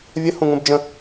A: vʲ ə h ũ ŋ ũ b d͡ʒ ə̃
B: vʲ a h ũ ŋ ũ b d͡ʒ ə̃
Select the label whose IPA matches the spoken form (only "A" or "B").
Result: A